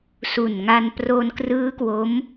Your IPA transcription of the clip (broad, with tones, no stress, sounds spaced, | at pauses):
s u˨˩ n ŋ a˧ n p r o˧ n k r ɯː˦˥ k w o˦˥ m